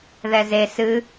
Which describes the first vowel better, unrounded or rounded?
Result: unrounded